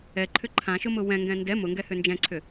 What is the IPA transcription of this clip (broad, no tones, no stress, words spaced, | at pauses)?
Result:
ɛǃʰʏ ǃʰãʃʊmʊ wɛ̃ŋɡɛ̃ ndɛ mʊŋɡɛhʏ nd͡ʒɛ̃ǀʰʏ